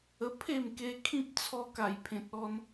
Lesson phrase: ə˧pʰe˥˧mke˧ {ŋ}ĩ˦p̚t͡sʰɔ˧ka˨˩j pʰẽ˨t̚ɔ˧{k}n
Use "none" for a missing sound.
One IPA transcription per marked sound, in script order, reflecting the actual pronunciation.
kʰ, none

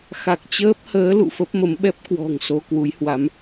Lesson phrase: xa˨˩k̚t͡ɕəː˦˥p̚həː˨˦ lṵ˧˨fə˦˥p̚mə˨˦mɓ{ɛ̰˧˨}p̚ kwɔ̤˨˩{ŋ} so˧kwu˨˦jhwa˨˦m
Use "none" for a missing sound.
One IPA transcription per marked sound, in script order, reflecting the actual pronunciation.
ɛ˦˥, ŋ

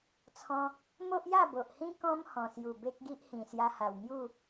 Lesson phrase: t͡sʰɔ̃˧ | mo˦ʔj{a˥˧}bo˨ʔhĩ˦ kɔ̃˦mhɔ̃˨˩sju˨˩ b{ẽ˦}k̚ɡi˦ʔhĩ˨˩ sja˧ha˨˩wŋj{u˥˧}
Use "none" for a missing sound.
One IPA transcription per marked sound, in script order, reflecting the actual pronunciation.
a˥˧, e˦, u˥˧

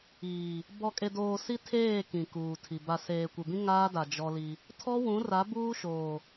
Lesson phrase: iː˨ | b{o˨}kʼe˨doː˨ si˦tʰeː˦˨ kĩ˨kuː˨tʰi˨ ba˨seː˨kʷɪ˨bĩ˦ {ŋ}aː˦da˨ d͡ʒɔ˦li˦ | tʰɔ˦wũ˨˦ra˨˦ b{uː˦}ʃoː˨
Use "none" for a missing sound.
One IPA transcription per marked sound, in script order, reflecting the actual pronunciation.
ɔ˨, ŋ, uː˦

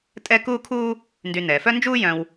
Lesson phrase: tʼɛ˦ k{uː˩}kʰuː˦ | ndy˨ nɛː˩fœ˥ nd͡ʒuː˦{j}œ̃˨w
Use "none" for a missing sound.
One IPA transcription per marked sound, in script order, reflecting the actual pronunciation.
uː˦, j

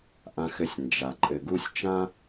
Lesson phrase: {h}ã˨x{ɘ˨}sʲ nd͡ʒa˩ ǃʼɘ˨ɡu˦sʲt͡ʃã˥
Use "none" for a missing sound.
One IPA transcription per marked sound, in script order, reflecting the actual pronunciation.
ʔ, ɘ˨

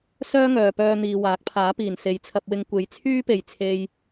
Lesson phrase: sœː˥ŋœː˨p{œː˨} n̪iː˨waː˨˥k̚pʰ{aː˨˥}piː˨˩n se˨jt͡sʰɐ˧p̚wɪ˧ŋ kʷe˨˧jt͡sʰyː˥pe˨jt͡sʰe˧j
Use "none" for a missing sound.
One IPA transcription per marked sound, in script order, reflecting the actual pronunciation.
œː˧, aː˨˥

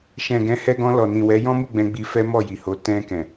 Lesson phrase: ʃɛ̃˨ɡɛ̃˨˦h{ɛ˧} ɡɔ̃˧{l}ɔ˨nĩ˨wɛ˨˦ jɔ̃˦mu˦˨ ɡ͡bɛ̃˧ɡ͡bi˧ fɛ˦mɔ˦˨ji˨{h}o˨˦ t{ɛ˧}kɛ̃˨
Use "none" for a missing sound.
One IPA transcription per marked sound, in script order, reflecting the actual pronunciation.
ɛ˧, l, h, ɛ̃˧

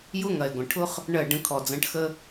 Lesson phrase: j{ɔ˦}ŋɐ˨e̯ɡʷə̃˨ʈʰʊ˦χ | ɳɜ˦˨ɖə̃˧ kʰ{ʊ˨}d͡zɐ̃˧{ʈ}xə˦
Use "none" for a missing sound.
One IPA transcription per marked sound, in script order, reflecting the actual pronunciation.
ʊ˦, ɔ˨, ʈ

